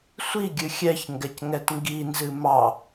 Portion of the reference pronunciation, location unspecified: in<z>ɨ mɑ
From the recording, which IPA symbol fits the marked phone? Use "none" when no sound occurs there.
z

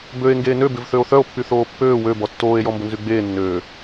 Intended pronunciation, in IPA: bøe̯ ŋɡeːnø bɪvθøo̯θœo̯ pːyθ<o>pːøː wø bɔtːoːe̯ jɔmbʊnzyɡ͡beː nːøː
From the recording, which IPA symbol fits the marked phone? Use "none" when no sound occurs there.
oː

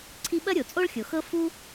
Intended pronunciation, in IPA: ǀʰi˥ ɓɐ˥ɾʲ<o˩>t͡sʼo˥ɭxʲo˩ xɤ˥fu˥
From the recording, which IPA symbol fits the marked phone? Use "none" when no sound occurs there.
o˩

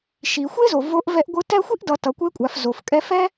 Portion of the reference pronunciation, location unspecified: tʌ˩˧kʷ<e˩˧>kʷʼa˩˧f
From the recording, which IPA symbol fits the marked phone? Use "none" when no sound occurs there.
e˧˥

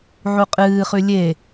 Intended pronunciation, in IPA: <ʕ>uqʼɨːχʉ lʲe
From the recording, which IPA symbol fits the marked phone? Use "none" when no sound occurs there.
ʕ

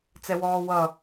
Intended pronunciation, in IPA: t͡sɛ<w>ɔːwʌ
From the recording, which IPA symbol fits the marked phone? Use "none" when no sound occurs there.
w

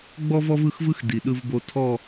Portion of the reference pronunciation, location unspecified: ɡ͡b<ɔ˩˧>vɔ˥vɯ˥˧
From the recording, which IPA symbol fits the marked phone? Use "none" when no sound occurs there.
ɔ˥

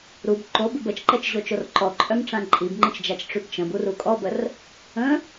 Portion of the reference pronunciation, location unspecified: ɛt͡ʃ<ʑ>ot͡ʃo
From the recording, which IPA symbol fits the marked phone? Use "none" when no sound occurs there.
ʑ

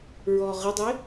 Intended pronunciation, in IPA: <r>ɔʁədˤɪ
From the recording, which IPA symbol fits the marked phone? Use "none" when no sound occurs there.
ɹ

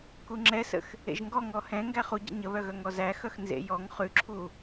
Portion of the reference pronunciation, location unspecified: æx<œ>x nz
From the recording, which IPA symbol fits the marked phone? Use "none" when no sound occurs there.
œ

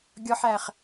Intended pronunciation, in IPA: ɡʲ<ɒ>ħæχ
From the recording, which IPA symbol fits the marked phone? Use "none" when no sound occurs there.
ɒ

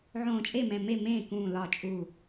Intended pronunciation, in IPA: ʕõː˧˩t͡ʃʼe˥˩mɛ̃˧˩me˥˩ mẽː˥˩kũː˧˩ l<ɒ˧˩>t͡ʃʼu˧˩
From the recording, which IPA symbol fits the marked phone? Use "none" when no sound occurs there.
ɒ˧˩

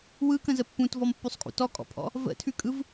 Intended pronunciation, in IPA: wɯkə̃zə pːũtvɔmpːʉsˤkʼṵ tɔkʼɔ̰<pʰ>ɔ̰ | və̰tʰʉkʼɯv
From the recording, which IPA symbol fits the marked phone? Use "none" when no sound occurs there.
pʰ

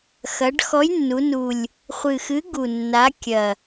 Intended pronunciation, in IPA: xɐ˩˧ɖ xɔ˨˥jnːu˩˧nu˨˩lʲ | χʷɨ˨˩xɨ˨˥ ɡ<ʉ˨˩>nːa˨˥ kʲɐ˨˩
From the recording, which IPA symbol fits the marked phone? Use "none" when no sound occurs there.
u˨˩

